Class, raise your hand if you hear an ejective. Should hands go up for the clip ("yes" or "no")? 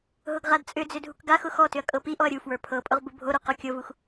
yes